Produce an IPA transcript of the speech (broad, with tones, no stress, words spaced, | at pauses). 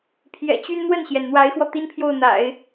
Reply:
pʰjɛ̰˨˩t͡ɕy˥n n̪wə˥˩nɕjɛ˩n n̪wa˧˥ɪ̯xwɔ˧ t̪i˥npʰjo˥˩ʊ̯n̪a̰˨˩˦ɪ̯